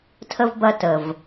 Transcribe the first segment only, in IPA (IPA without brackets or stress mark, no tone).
tʰ